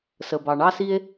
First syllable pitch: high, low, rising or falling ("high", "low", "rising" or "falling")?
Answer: low